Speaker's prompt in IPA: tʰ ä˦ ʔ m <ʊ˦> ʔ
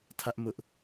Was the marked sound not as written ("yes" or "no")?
no